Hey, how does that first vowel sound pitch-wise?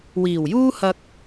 low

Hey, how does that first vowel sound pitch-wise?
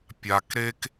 low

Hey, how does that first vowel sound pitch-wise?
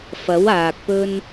rising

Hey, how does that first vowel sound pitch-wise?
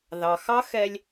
low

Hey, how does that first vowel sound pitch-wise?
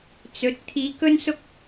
rising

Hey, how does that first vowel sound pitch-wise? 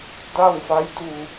falling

